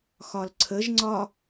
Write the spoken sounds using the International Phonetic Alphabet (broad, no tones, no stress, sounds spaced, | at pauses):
x ɒ l ǀʰ ə ʒ ŋ͡ǀ ɒ